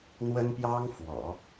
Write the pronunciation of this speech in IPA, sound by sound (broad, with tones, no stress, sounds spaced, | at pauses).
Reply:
n̪ w ə˥ n p j ɑ˥ ŋ f w ɔ̰˨˩˦